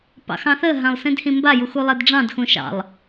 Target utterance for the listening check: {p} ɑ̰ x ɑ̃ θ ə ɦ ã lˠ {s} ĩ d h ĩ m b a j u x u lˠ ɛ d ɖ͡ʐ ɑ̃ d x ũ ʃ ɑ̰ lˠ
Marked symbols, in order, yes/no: yes, yes

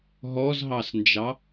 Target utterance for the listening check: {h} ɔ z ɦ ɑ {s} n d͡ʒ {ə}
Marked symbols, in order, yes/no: no, yes, no

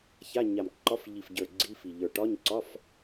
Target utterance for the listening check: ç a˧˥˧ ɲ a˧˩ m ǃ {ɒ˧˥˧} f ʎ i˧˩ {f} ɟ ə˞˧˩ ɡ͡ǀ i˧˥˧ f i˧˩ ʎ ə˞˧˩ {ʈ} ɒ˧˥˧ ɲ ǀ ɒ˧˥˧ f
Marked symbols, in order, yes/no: yes, yes, yes

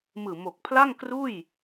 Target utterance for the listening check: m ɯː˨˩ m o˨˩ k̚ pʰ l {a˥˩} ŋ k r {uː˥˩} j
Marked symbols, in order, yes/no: yes, yes

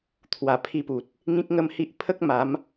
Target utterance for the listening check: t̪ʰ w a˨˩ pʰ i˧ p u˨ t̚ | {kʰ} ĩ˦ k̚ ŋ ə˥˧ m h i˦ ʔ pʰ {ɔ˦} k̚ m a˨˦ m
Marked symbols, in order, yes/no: no, no

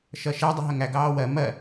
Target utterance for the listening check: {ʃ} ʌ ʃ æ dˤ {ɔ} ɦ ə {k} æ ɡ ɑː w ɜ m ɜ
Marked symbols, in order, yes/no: yes, no, no

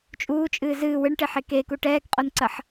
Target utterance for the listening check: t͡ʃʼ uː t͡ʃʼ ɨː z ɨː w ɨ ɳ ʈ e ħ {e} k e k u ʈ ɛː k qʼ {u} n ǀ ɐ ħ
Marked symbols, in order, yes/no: yes, no

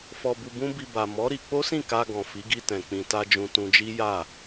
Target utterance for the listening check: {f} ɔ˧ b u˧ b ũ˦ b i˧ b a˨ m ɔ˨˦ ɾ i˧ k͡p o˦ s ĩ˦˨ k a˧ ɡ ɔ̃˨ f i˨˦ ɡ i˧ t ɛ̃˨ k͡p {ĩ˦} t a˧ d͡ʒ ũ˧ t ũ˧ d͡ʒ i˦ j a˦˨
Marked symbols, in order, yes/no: yes, no

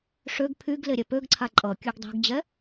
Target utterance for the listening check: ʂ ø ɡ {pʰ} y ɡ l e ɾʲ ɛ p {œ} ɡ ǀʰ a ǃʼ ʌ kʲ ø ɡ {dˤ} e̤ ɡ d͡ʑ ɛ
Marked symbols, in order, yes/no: yes, no, yes

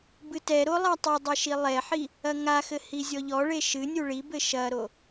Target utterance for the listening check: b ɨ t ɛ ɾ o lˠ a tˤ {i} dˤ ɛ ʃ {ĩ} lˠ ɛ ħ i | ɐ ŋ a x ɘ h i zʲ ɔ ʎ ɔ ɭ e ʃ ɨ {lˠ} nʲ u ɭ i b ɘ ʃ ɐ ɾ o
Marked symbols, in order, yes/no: yes, no, no

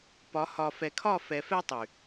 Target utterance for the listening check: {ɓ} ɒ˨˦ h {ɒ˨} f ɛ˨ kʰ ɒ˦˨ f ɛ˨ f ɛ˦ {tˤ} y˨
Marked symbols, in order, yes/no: no, yes, yes

